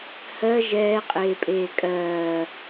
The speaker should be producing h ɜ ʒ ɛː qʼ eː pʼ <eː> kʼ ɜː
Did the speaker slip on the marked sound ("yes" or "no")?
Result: no